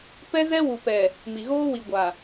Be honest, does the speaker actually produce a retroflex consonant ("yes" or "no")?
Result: no